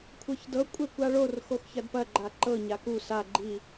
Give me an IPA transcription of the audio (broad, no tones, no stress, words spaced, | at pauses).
kʷʰɤçdɤ kʷʼɛkʷaɭor xoxçɐdpɐ ɡ͡ǃaǃɤ ɲaku sa ɡ͡ǃi